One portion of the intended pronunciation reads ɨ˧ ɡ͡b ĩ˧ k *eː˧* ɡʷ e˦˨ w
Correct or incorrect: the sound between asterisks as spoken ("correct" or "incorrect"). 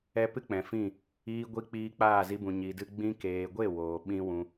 incorrect